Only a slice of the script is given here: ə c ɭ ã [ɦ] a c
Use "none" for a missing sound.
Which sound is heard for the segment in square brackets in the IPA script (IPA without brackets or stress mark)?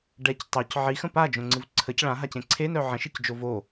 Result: ɦ